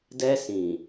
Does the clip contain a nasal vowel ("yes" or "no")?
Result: yes